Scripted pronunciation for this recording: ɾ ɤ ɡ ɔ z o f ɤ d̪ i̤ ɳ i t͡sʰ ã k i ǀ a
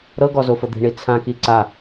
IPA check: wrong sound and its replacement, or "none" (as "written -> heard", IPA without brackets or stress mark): none